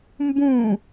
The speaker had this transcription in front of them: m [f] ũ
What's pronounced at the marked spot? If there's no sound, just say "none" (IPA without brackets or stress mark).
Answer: b